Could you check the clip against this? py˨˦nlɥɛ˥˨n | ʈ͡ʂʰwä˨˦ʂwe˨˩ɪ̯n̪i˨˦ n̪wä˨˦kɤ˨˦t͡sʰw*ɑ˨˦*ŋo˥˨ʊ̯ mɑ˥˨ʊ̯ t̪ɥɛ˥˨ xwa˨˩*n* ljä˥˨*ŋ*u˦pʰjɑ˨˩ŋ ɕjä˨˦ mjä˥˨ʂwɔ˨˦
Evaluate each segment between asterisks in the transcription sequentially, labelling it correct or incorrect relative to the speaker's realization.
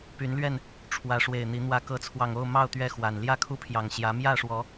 incorrect: ɑ˨˩, correct, incorrect: kʰ

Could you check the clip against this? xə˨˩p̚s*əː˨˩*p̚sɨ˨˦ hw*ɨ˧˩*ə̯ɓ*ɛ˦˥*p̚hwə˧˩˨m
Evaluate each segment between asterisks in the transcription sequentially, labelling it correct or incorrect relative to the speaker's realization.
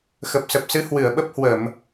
incorrect: ə˨˩, correct, incorrect: ə˦˥

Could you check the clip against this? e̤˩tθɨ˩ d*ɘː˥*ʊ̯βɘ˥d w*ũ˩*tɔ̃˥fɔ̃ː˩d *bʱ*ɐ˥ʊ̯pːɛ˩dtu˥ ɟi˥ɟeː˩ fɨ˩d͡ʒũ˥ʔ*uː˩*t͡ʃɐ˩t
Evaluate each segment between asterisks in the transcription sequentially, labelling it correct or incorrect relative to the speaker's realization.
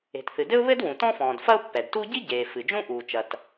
incorrect: ɘ˥, correct, incorrect: f, correct

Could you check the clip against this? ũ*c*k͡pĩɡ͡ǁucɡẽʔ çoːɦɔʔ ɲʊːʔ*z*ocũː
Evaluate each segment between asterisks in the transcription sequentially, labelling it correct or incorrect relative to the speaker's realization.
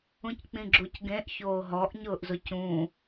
correct, correct

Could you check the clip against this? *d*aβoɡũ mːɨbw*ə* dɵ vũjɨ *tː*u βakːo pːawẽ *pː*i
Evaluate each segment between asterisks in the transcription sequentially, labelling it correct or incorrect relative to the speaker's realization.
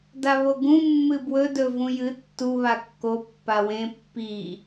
correct, incorrect: ɵ, correct, correct

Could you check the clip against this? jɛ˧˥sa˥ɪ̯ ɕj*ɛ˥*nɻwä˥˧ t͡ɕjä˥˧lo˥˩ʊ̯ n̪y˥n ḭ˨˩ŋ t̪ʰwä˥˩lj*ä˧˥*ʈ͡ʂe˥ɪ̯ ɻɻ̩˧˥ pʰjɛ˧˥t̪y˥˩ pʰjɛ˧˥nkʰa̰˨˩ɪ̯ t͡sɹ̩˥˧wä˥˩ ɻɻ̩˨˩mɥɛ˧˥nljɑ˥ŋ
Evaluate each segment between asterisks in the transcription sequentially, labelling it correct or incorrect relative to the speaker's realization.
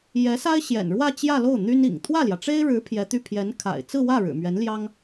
incorrect: ɛ̰˨˩, incorrect: ä˩

